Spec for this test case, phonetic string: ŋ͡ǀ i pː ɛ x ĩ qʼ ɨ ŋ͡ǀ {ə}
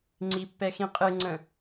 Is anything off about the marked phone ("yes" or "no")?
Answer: yes